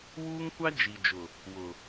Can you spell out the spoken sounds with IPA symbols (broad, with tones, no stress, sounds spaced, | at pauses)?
w uː˦ ŋ kʷ a˦ d͡ʒ i˨ d͡ʒ ʊ˨ | w ʊ˨